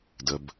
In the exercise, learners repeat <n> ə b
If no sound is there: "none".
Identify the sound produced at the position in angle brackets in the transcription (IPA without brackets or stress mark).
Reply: d